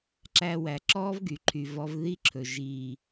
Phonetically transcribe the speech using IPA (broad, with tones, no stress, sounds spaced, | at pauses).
ǁ æ˧ w æ˨ ǁ ɔː˦ v ɡ y˨ ǃʰ y˨ v ɔ˧ v ð i˦ ǁʰ ɵ˨ ʒ iː˨